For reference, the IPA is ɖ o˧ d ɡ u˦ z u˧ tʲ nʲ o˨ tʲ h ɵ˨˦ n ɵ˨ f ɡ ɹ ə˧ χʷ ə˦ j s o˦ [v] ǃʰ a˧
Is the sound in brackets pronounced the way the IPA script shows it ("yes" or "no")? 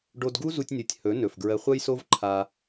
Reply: yes